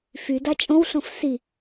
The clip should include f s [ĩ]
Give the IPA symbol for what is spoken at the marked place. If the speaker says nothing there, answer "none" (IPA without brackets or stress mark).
i